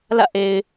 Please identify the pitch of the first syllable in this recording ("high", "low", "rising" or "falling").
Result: falling